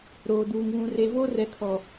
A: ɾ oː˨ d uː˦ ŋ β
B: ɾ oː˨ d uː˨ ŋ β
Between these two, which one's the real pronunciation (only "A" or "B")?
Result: B